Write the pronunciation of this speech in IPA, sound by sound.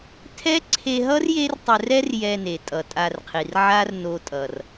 tʰ ɛ˦ ǀʰ e˧ ɦ ʌ˦ r j e˦ r tˤ ɛ˧ r ɛ˦ r j ɛ˧ n e˨ tʼ ʌ˨ tʼ a˧ r qʰ i˨ r ʕ a˦ r n o˧ tʼ ʌ˨ r

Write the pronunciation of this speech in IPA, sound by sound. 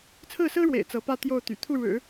t͡sʰ ɹ̩˥˩ s ɹ̩˥ ɻ w ḛ˨˩ ɪ̯ t͡s ɤ˧˥ p ä˥˧ t̪ j o˥˩ ʊ̯ t̪ y̰˨˩ t̪ʰ u˥˩ ɻ ɻ̩˨˩˦

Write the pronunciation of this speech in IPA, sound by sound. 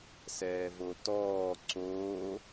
s ɛː v o t ɔː ǀ oː

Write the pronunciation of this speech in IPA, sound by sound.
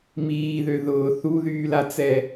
m iː ð ø ð ʊː θ u ð yː l a t͡s ɛ

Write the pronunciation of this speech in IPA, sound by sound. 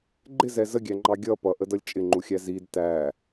ɡ͡ǃ ɪ z ɛ z ə ɡʲ æ ŋ͡ǃ ɑ ɡʲ ʌ p ʌ ʔ ə d ʌ lʲ t͡ʃʼ ɪ ŋ͡ǃ u xʲ æ z i d t æ

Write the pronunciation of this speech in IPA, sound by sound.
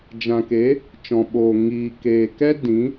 d͡ʒ ã˨ k e˨˦ | t͡ʃ ɔ̃˨ ɓ oː˨ ŋ iː˨ k eː˨ k ɛ˦ d ĩ˨˦

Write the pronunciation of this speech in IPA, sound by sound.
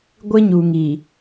ɡʷ ɪ˦ ɲ u˨ ŋ i˨

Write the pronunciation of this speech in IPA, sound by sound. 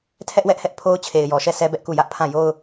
tʰ ɛ˦ ʔ w ɛ˦ ʔ h ɛ˦ ʔ pʰ o˦ ʊ̯ t͡ɕʰ e˨ ɪ̯ j ɔ˨ ʃ ɛ˦˨ sʰ ɛ˦ b ɛ˦ ʔ k u˦˨ j ä˦ ʔ pʰ ã˦˨ j o˦ ʊ̯

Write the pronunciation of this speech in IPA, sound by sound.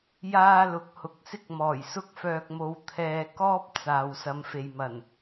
j aː˥ l ʊ˨˥ k̚ h ʊ˨ k̚ s ɪ˥ k̚ m ɔː˨˩ j s ʊ˥ k̚ f œː˧ k̚ m o˧ w t̪ʰ ɛː˧ k ɔː˥ p̚ t͡s aː˨ w s ɐ˨˧ m f e˨ j m ɐ˨˩ n

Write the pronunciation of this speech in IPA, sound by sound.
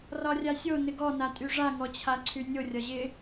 r ɒ rʲ a sʲ o n ɪ ɡ ɔ n a tʼ y ʐ a ŋ ɔ t͡ɕʰ a ǀʰ y nʲ o rʲ ɒ ʑ ɪ

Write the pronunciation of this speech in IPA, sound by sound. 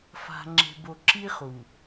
f a̤˨ ŋ͡ǁ e̤˨ b o˨ ǁ i˦ χ u˨

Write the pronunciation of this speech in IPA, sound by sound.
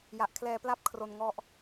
j a˨˩ ʔ kʰ l ɛː˧ p l a˥˩ p̚ kʰ r o˧ n ŋ ɔ˦˥ ʔ

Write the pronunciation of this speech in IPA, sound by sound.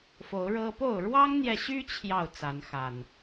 f o˨˦ ʊ̯ ɻ ɤ˦ p o˥˨ ʊ̯ ɻ w ɑ˦ ŋ n̪ j ɛ˨ ɕ y˦ t͡ɕʰ j ɑ˥˨ ʊ̯ t͡s a˨˦ n x a˨˩ n

